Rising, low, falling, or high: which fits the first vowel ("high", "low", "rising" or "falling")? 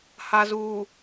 low